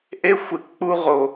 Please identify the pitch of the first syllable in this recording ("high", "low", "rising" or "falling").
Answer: high